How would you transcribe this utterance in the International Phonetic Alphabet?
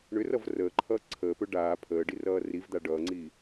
ɳ ʏ r ʌ v r əː ǃʰ ʌː ǀʰ əː p ɵ ɖ aː pʰ əː ɖ i r ʌː r i v d̪ a ɖ ʌː ŋ͡ǀ iː

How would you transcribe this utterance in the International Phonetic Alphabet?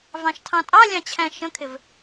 v ɑ̃ ʃ tʰ ɑ̃ tʼ ɑ lʲ ɑ̃ t͡ɕʰ æ̃ ʃ ə̃ kʰ ɪ v

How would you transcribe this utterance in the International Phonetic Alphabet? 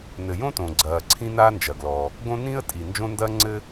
n ɘ˩ j õ˥ t õ˩ ɡ͡ǀ ɐː˩ ǀʰ ĩ˥ n aː˥ n d͡ʒ ɐ˩ ɡ l ɔ˩ | ɡ õ˥ n ĩ˥ ə̯ tʼ i˩ n d͡ʒ õ˥ n d ɐː˥ ŋ͡ǀ ɘ˥

